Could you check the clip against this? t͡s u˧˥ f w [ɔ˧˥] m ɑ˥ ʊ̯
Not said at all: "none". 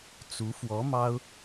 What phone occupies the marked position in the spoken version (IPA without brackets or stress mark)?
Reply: ɔ˧˥